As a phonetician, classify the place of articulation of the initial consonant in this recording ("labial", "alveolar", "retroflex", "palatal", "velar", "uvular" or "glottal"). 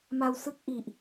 labial